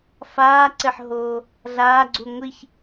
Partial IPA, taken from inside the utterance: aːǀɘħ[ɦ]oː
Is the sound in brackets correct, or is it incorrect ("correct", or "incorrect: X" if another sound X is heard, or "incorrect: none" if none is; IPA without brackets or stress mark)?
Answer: correct